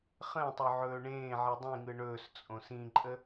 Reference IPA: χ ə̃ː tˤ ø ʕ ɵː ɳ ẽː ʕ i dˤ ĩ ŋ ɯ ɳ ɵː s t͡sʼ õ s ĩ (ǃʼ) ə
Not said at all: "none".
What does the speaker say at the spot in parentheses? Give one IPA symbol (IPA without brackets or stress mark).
ǃʼ